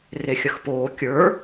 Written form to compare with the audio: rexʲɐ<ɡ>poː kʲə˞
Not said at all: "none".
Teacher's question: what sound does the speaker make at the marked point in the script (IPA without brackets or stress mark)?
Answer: x